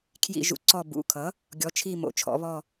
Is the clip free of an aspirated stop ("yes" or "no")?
no